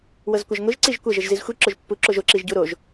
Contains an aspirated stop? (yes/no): no